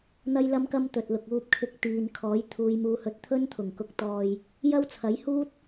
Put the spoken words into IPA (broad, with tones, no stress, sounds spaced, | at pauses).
n̪ ɐ˥ j l ɐ˥ m k ɐ˥ m t̪ ɵ˨ t̚ l ʊ˨ k̚ uː˧ p̚ kʰ ɪ˧ k̚ t̪ iː˨ n kʰ ɔː˨˥ j t̪ʰ uː˨˧ j m uː˧ h ɵ˧ t̚ t̪ʰ ɵ˥ n t̪ʰ ʊ˨˩ ŋ k ʊ˨ k̚ t̪ ɔː˨ j | j ɐ˥ w t͡sʰ ɐ˨˥ j h uː˥ t̚